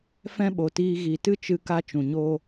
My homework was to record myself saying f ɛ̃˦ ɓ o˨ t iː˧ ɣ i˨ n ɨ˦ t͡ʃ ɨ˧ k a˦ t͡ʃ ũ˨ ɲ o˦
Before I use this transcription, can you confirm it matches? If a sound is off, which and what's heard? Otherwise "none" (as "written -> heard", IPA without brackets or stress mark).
n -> t